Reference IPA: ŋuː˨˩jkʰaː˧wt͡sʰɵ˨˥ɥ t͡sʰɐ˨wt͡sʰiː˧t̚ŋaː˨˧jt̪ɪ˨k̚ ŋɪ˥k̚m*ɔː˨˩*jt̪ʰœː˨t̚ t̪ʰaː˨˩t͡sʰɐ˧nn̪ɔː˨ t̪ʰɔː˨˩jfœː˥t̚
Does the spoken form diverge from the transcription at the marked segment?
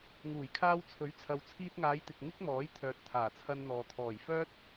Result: yes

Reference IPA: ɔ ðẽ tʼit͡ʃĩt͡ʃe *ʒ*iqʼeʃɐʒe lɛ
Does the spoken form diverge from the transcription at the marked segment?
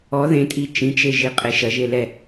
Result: no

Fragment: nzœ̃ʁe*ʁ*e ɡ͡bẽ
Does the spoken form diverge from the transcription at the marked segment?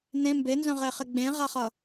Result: yes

